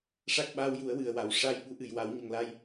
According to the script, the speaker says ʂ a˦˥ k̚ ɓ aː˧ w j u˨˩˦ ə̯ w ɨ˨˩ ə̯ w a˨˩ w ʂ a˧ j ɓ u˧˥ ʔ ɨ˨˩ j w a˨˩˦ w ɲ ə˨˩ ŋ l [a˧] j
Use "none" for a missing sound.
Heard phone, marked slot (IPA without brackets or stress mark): a˧